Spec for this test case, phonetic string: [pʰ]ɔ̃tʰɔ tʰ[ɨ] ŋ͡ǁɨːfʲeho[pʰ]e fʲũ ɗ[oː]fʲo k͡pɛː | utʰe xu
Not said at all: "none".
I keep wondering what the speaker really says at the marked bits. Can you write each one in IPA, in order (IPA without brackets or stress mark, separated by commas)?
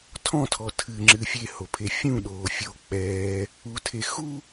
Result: tʰ, ɨ, pʰ, oː